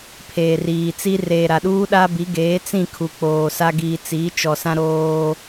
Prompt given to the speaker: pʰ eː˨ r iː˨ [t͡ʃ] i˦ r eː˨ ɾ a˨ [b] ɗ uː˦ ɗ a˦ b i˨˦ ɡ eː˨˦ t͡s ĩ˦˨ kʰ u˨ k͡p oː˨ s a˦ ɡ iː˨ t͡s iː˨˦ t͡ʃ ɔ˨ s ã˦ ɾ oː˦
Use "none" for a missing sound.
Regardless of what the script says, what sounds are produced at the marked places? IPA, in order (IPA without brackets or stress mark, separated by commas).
t͡s, none